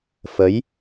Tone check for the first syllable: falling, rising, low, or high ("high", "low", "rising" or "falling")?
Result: rising